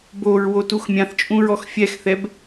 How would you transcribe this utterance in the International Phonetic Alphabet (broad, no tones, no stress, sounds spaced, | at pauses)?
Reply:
b o ɹ w o t u x mʲ ã θ t͡ʃʼ ũ ɹ ɔ x fʲ ɛ x θ ɛ b